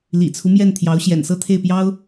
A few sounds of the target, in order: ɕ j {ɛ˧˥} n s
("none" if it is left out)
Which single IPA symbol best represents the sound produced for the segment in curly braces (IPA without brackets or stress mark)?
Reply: ɛ̰˨˩